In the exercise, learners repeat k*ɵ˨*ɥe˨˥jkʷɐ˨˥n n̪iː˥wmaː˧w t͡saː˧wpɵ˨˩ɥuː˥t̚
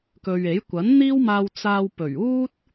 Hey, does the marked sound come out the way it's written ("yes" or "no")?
yes